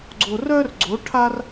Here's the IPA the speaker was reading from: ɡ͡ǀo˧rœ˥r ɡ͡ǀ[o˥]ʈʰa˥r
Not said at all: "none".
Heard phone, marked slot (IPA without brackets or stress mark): o˧˥